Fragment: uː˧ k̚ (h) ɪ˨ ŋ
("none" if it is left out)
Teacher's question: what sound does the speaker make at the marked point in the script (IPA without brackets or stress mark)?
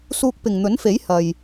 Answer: p